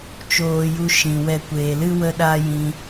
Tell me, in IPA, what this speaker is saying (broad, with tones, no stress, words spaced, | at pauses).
t͡ʃoː˧ju˧ ʃĩ˨wɛ˧ kʷeː˨lɨ˦ wə˦ɗa˦jĩ˧